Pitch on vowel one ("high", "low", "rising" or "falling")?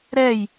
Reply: falling